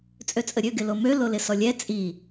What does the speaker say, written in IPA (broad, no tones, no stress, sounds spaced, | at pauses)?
t͡sʼ ø t͡sʼ ə ɾʲ ø ɡ ɪ l o m ø l o l ɪ s ɔ lʲ ɛ t͡sʼ i